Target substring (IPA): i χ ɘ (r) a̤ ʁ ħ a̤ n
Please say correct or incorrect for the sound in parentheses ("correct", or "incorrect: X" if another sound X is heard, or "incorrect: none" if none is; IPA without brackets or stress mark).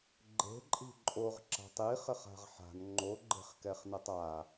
incorrect: χ